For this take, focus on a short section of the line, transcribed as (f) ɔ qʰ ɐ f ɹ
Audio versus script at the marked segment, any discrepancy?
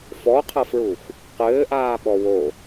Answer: no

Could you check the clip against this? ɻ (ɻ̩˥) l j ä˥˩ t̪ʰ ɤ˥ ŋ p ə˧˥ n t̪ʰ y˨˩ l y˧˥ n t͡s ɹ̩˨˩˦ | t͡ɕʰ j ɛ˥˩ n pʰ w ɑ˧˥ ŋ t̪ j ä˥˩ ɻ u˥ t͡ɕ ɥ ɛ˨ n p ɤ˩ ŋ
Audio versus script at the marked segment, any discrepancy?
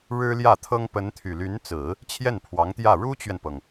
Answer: no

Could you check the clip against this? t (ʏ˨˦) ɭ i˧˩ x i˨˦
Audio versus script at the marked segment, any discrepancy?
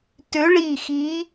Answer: no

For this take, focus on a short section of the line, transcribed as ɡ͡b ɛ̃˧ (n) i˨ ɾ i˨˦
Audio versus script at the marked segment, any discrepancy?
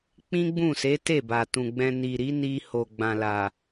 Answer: no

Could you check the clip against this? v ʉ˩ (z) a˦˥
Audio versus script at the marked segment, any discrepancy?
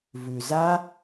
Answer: no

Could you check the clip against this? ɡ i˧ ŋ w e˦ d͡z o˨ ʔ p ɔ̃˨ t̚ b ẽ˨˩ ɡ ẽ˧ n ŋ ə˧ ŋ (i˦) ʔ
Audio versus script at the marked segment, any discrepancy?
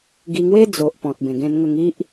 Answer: no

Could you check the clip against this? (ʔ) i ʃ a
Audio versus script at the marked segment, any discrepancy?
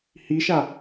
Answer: yes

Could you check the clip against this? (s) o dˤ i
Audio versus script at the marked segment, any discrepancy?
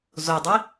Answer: yes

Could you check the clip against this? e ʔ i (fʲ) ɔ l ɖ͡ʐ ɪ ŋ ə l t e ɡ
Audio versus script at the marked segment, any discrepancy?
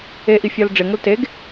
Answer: no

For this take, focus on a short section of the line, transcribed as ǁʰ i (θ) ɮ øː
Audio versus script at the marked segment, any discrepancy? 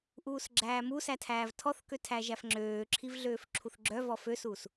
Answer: yes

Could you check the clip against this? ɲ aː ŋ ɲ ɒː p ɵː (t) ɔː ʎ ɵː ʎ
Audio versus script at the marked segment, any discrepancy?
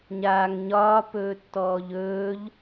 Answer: yes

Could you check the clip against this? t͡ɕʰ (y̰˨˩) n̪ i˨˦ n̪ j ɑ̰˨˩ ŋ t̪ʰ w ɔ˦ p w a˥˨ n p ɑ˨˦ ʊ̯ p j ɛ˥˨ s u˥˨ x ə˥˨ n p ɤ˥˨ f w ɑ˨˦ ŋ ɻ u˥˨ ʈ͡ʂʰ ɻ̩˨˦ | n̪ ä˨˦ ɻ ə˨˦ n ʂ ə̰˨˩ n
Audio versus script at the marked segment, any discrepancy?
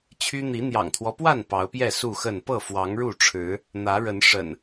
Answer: yes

